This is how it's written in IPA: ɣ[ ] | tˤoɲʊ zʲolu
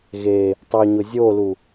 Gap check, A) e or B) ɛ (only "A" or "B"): A